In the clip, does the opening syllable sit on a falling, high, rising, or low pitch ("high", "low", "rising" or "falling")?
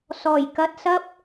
low